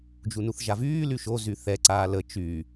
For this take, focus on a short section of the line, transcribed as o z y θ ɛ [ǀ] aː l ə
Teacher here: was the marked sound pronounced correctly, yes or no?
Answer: yes